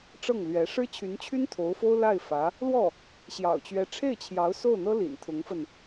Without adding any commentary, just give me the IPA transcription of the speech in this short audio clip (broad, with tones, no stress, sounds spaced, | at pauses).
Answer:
ʈ͡ʂ ɤ˥˩ ŋ l ɥ ɛ˧˥ ʂ ɻ̩˥ t͡ɕʰ y˧˥ n t͡ɕʰ y˥ n t̪ʰ o˧˥ ʊ̯ f o˥ ʊ̯ l a˥˩ ɪ̯ f ä˧˥ | l w ɔ˥˩ | ɕ j ɑ̰˨˩ ʊ̯ t͡ɕ ɥ ɛ˧˥ ʈ͡ʂʰ e˥˩ ɪ̯ t͡ɕʰ j ɑ˧˥ ʊ̯ s o˥˩ ʊ̯ n̪ ɤ˥ l ḭ˨˩ n t̪ʰ ʊ˧˥ ŋ f ə˧ n